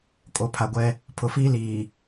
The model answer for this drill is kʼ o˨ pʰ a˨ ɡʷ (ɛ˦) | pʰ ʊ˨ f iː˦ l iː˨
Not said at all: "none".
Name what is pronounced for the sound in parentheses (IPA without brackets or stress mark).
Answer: ɛ˦